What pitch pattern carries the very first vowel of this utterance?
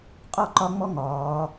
falling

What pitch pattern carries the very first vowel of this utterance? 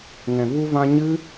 low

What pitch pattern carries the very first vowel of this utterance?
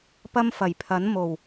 high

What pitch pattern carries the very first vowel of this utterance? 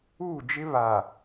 falling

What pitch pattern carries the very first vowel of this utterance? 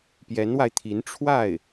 rising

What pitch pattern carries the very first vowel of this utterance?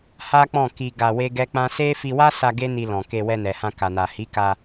high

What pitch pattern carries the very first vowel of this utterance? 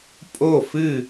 falling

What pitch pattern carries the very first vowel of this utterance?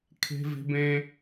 high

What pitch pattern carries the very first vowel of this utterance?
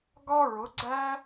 high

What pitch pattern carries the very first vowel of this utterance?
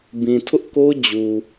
low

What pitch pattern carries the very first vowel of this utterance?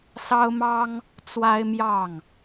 high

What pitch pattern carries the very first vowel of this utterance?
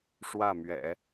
falling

